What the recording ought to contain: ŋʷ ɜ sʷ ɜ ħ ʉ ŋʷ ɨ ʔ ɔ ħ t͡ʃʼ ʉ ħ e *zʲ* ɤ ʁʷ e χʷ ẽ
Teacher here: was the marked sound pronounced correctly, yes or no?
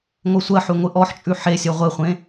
no